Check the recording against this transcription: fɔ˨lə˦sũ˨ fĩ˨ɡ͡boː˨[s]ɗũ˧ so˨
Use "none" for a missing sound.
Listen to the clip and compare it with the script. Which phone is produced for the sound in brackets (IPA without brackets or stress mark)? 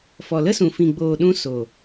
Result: none